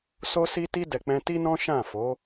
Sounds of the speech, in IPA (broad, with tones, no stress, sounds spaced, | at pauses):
s o˧ s i˧ t i˧ d ɛ˨ k͡p ɛ̃˧ t i˦ n ɔ̃˦ ʃ ã˦˨ f o˨˦